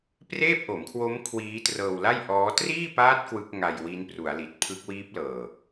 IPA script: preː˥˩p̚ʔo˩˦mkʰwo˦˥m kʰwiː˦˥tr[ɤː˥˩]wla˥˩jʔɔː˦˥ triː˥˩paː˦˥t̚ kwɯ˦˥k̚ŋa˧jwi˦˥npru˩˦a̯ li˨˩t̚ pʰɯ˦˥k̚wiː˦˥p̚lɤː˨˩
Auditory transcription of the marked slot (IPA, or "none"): ɤː˧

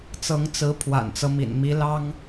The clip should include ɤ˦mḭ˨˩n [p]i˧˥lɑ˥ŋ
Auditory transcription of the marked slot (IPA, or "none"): m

